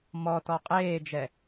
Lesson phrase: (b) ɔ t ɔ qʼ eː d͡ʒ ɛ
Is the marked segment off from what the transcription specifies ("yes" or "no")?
yes